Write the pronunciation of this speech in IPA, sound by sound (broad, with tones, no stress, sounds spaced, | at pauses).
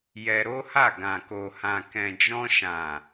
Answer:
j ɛ˧ ɾ o˦ h a˦˨ ɡ ã˨ k o˨ h ã˨ k ɛ̃˨ d͡ʒ ɔ̃˧ ʃ ã˨